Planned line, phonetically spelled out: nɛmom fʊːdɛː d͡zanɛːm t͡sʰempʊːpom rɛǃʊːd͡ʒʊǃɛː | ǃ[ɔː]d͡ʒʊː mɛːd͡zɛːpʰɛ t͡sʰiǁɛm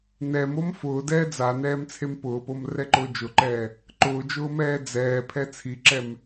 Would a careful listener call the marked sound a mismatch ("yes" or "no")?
yes